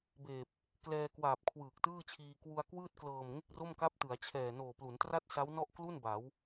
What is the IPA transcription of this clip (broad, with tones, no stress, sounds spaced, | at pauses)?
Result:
b eː˨˩ p̚ | k l ɛː˧ k w aː˨˩ p̚ kʰ w ɯː˨˩ k̚ t ɯː˥˩ t͡ɕʰ iː˧ k w u˧ a̯ k w ɯː˥˩ t̚ k l ɤː˨˩ m ŋ e˥˩ k̚ r o˥˩ m k a˦˥ p̚ t ɯ˩˦ a̯ t͡ɕʰ ɛː˨˩ n oː˨˩ p l u˩˦ n t r a˥˩ t̚ s a˦˥ w n ɔ˥˩ ʔ k l u˥˩ n b a˩˦ w